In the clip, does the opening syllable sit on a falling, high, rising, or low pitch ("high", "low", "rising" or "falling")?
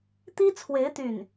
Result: high